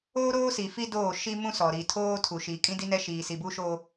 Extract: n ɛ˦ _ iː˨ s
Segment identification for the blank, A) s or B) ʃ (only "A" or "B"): B